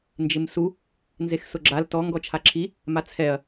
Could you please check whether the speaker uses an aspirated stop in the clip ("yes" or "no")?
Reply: yes